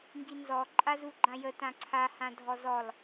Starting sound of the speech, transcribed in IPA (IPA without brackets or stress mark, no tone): ŋ